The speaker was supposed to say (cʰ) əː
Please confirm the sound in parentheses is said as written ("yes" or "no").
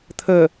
no